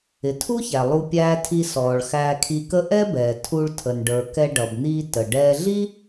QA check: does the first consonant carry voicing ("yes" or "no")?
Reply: no